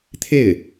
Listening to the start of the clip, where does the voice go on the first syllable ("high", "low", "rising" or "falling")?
falling